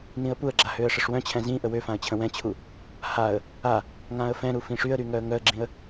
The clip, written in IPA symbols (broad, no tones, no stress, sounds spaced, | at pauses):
n ĩ ə̯ p u ə̯ ɡ͡ǁ a h ø ə̯ ʂ ə ʂ w œ̃ t͡ɕʰ ɛ̃ z ĩ ʔ ə w ø f ã ə̯ t͡ɕʰ ə̃ w ɛ̃ t͡ɕʰ u | h a ə̯ | a | ŋ ã ə̯ f ɛ̃ ɾ u f ĩ ʂ y ə̯ ɾ y ŋ œ ə̯ ŋ œ ə̯ ɡ͡ǁ ĩ ə̯